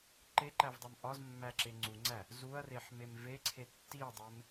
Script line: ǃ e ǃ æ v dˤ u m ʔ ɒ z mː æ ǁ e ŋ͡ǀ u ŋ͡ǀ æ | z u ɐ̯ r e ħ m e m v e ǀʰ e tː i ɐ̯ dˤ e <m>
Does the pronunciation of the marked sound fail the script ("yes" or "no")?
no